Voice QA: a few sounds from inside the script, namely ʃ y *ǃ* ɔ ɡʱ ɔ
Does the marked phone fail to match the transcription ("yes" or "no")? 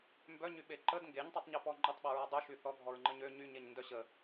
yes